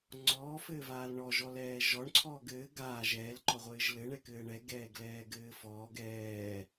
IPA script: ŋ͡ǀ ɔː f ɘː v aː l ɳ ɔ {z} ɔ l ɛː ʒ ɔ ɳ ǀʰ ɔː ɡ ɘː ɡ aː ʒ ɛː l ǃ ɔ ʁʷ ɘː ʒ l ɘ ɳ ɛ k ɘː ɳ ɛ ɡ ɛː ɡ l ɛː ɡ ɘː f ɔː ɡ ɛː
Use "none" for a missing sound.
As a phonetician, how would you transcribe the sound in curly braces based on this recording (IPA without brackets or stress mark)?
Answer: ʒ